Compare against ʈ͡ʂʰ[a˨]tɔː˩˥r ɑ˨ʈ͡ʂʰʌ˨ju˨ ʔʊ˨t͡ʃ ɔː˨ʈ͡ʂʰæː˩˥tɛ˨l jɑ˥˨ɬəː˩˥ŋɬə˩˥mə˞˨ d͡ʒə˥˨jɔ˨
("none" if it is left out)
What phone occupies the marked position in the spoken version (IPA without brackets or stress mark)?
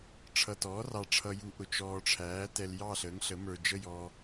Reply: ʌ˨